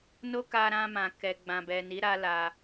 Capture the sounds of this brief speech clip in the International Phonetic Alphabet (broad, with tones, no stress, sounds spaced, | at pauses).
n o˦ k a˧ ɾ ã˧ m ã˨ k ɛ˨ ɡ͡b ã˨ b ɛ˨ n i˨˦ ɾ a˦ l a˧